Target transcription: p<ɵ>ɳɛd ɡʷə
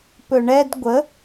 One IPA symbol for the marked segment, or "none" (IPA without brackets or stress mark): ɵ